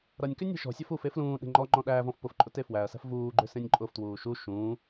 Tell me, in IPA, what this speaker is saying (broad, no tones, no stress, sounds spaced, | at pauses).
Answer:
ɾ ʌ nʲ k ʏ nʲ e̤ ʃ ɔ̤ sʲ ʌ f u f e f l ũː ɗ e̤ ŋ͡ǃ ɔ ŋ͡ǃ ɔ̃ ɗ æː v ɔ̃ f p ʊ f ǃʼ ʊ t e f w æ ɐ̯ s æ̤ f v uː ɡ͡ǃ ʏ s ẽ nʲ ǃʼ ʊ f t w uː ʃ u ʃ ũː